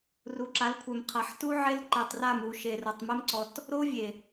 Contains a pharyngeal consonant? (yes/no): yes